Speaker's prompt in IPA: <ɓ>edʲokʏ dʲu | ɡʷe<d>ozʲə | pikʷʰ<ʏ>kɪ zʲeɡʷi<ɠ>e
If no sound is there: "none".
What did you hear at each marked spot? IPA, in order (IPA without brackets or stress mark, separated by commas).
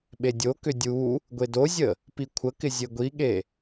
ɓ, d, ə, ɠ